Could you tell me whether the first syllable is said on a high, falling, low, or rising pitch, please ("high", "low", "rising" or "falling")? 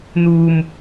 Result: low